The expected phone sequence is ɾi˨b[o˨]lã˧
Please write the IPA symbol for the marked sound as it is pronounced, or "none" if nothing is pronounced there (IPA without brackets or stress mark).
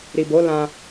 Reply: o˨˦